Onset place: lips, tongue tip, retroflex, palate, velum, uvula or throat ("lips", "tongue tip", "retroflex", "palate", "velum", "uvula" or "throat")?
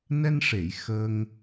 tongue tip